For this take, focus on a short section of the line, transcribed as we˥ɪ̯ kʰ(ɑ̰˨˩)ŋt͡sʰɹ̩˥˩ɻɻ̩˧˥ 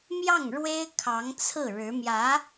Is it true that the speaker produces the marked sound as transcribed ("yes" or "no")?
no